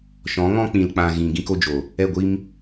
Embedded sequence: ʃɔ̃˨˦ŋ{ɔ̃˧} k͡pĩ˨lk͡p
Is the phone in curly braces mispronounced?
yes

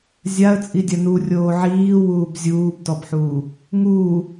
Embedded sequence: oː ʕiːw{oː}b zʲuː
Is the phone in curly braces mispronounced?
yes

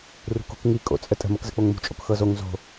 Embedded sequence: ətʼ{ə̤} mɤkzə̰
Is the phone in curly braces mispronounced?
no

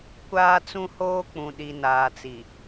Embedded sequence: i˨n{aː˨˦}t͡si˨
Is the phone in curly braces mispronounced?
yes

